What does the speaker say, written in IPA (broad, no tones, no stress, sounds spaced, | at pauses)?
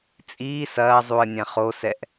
t͡sʼ iː s ɐː zˤ u ə̯ nʲ ã χ o s ɛ ʔ